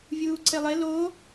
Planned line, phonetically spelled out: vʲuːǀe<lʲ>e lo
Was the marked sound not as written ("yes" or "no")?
yes